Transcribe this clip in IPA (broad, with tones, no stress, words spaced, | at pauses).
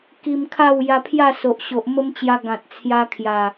ki˧m kʰa˥˧w ja˧pʰja˥˧so˨ʔɕo˨ʔ mə˦mt͡ɕja˧ ɡã˨t̚t͡sʰja˧ kʰja˨˩